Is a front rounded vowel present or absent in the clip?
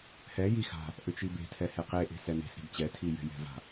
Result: present